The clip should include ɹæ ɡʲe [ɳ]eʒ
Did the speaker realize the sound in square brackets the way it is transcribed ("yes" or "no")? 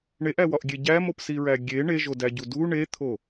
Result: yes